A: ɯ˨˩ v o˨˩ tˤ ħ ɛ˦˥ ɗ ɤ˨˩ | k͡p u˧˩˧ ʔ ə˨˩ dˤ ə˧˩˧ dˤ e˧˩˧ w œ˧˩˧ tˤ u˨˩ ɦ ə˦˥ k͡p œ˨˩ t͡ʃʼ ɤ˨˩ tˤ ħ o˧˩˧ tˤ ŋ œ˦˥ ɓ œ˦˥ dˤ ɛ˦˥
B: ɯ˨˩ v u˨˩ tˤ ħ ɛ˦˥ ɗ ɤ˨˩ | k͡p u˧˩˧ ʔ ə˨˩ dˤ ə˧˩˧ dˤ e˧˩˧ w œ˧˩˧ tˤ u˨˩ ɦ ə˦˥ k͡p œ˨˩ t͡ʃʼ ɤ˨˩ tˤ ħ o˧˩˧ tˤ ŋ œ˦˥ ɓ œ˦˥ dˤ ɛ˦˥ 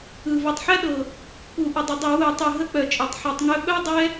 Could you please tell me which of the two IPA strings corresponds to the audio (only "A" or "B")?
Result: A